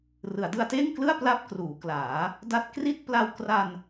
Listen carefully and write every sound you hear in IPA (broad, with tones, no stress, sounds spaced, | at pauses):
r ɯ˩˦ a̯ d ɯ˧ a̯ t eː˥˩ ŋ k l ɯ˥˩ a̯ p l a˥˩ p̚ k r uː˩˦ k l aː˩˦ | d a˦˥ t̚ k r i˥˩ t̚ p l a˧ w k r a˧ n